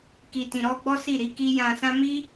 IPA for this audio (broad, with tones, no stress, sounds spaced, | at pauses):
k i˨ t ĩ˨ ɾ ɔ˧ ɡ͡b ɔ˦ s i˦˨ ɾ i˨˦ k i˦ j ã˧ s ã˦ m i˦